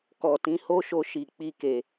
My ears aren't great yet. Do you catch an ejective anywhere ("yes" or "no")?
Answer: no